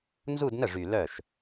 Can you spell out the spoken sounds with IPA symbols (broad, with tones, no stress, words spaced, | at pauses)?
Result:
nzu˥˧dnə˥˩ʐy˨˩ lœ˥˩ʃ